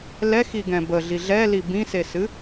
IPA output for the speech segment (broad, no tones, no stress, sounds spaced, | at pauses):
l ɛ x i ɡ ɛ̃ b ə ɮ i ɮ ɛ l i b ĩ s e s ɨ